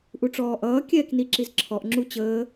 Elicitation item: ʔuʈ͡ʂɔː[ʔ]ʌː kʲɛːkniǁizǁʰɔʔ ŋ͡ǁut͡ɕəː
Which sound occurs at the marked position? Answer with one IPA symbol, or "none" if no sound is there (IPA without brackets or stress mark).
ʔ